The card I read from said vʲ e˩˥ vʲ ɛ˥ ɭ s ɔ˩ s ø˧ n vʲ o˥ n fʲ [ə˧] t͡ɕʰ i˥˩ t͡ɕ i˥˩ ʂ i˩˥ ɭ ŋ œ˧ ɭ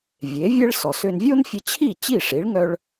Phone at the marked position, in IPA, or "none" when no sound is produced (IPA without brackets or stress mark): ə˧